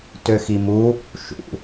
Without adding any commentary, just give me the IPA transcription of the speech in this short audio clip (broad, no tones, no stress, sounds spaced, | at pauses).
t ø x i m u | ʃ ṵ